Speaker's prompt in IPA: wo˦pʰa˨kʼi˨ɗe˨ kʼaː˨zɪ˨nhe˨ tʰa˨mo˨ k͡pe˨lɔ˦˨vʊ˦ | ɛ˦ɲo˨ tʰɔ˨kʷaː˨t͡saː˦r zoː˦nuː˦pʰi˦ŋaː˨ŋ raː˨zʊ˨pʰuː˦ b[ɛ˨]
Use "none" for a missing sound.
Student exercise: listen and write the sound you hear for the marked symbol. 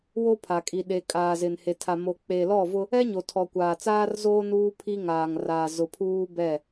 ɛ˦˨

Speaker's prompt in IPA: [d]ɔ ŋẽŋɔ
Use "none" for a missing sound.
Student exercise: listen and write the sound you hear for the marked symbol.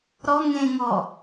ɾ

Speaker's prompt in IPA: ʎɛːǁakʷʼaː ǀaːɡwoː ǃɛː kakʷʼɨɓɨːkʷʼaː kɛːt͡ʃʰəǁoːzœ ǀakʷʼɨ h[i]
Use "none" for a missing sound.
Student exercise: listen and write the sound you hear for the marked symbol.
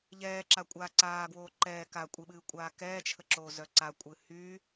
y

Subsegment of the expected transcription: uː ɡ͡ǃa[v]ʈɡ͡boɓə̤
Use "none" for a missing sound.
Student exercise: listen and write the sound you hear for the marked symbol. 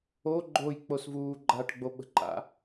none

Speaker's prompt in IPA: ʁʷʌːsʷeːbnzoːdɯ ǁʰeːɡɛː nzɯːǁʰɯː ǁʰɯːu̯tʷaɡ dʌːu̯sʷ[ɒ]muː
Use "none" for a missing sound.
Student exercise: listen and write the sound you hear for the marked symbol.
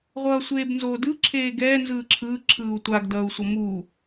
ʌ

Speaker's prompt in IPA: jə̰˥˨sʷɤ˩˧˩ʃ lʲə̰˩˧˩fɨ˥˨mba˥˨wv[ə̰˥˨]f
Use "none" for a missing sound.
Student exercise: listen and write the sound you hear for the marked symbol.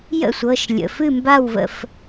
ə̰˥˨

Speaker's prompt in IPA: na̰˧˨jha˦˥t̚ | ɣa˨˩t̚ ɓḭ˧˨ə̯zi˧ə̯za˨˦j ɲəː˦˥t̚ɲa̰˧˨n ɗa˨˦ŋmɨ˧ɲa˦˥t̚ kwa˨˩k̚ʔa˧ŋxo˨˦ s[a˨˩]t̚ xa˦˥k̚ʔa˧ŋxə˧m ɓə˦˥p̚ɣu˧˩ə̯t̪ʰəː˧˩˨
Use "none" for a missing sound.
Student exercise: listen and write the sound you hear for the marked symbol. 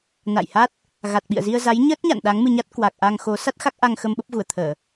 a˦˥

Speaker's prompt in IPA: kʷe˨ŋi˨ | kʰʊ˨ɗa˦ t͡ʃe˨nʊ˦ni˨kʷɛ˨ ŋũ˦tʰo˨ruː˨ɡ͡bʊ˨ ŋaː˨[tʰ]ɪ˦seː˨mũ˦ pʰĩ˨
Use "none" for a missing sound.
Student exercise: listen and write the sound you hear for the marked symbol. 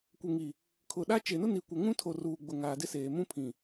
d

